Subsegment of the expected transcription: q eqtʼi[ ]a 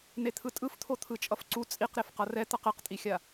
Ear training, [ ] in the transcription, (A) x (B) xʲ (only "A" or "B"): B